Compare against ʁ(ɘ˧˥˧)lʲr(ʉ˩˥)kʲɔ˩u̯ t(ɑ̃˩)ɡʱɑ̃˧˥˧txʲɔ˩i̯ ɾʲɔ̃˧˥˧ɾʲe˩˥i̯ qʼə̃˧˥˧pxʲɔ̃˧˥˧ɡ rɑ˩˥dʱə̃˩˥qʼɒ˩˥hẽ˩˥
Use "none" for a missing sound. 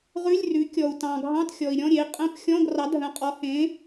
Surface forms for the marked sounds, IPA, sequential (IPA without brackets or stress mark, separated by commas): ʉ˧˥˧, ʉ˩˥, ɑ̃˩